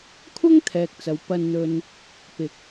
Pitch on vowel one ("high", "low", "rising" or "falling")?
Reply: high